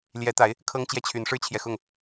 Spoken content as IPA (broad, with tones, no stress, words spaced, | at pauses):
ljɛ˨˦t̪a˨˦ɪ̯ | kʰɤ˦ŋt͡ɕjɛ˥˨t͡ɕʰy˨˦n ʂɻ̩˦t͡ɕʰjɛ˨xʊ˥˨ŋ